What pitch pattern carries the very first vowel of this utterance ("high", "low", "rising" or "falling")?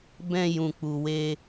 low